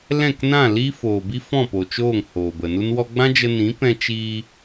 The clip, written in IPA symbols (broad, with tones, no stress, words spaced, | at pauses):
lɛ̃˦˨knã˦˨ liː˦foː˨bi˦ fɔ̃˦˨po˨t͡ʃoː˦˨ŋ hoː˨bə˨nu˦n wɔ˧ɡ͡bã˦ d͡ʒə˧nĩ˨˦pɛ̃˧ t͡ʃiː˧